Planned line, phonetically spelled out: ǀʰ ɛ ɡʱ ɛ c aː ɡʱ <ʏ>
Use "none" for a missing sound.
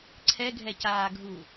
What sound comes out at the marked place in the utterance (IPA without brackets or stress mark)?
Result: u